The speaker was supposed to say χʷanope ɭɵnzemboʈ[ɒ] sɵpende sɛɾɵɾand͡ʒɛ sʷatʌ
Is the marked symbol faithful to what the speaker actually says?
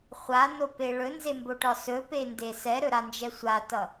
yes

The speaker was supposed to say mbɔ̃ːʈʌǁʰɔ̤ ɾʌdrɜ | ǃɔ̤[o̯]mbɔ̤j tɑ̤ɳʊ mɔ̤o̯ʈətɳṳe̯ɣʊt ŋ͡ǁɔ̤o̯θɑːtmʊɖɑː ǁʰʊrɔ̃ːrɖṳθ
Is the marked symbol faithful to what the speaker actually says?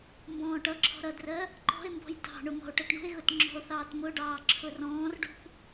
no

